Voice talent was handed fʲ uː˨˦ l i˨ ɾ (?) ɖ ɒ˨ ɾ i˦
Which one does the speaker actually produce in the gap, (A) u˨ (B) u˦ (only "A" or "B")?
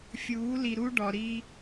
B